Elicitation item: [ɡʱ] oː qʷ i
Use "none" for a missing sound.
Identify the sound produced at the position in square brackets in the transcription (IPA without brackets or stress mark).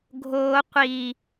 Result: ɡʱ